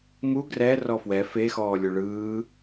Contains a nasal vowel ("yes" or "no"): no